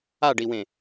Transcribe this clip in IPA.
a ɖ i w ẽ

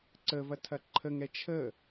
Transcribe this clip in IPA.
ǀ ə v ɐ tʰ ɐ ǃʰ ə ŋ ɛ t͡ʃʰ ə

